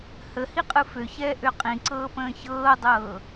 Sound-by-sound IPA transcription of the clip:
h ə h i qʼ ɯ f ø ç ɛː ʔ ø qʼ ĩ ǀ ɤː p ə̃ː ç ɤː dˤ ɤː

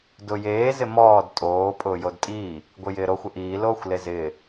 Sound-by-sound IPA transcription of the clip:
d ʊ j eː z ɪ m ɔː d tʼ oː pʼ ʊː j o d tʼ iː | ɡʷ ɪ j ɪː ɾ o xʷ ɪ ʔ iː l oː xʷ l e z ɪː

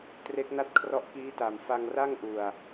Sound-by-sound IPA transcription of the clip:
t r e˦˥ k̚ n a˥˩ t̚ kʰ r ɔ˦˥ ʔ k iː˦˥ t a˨˩ m f a˧ ŋ r a˥˩ ŋ ʔ u˨˩ a̯

